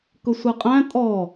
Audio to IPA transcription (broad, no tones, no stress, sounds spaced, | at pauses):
k ʊ sʷ ɛ qʼ æ̃ tʼ ɔ